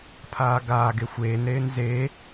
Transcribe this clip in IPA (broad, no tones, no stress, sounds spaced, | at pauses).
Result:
pʰ aː ɡ aː ɡ e xʷ eː n ɾ eː n z e